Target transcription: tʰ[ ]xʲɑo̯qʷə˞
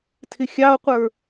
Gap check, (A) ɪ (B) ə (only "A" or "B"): A